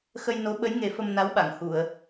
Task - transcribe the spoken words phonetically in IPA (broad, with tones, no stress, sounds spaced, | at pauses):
x ə˧ j n o˧˥ ɓ ə˧˥ j ŋ e˨˩˦ f ə˧ m n a˧˥ w ɓ a˨˩˨ ŋ h u˨˩˨ ə̯